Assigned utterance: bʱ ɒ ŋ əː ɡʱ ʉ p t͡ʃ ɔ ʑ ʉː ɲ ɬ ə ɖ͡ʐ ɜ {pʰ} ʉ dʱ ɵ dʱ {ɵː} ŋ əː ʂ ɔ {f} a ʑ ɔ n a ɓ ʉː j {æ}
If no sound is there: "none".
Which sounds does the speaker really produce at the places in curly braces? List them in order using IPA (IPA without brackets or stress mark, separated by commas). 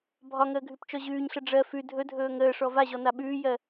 f, ɵː, v, ɜ